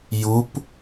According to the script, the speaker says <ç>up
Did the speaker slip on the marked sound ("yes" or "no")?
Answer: yes